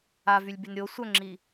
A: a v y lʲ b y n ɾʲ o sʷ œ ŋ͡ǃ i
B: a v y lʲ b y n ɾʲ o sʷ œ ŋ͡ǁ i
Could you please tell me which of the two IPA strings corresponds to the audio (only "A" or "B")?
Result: B